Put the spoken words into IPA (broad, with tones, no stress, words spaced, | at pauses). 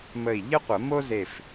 mə˧˩i̯ ʎə˥qʷə˨˩˦mo˥ze˧˩f